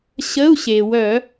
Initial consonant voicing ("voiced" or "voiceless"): voiceless